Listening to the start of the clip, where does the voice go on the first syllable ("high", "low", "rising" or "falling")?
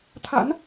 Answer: rising